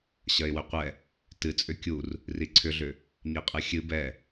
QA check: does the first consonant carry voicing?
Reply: no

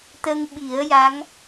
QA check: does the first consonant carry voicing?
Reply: no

